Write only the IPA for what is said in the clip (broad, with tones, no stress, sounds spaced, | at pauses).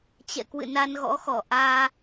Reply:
t͡ɕ ɛ̰˧˨ k w ɨ̰˧˨ n a˧ n ɣ ɔ̰˧˥ x ɔ˧˩ ʔ aː˧